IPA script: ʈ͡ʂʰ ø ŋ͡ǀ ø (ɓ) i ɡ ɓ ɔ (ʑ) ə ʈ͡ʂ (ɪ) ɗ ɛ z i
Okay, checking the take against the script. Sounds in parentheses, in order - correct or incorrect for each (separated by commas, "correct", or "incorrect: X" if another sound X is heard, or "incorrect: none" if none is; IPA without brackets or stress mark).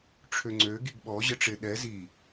incorrect: ɡ, correct, correct